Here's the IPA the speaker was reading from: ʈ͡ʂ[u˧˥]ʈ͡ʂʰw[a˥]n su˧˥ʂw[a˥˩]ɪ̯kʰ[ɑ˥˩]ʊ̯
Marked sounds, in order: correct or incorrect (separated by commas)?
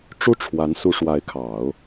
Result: incorrect, incorrect, incorrect, incorrect